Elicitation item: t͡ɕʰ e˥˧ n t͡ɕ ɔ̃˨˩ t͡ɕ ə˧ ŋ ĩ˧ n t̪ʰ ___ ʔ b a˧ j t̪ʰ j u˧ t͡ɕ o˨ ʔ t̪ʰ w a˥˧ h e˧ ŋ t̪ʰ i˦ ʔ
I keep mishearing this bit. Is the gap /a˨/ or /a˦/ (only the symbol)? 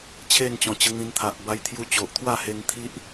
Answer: a˨